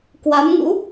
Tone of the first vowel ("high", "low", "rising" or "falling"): rising